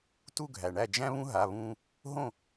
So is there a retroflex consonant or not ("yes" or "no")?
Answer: yes